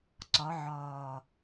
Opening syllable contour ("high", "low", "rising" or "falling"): rising